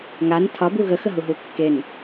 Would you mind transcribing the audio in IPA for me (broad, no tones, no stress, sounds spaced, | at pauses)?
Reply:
ŋ a n tʰ ɒ b u ɣ ə x ə ɦ u ɦ u kː e n